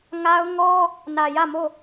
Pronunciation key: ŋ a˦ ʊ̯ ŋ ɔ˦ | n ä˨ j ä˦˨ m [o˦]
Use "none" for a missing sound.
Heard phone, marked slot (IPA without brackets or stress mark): o˦˨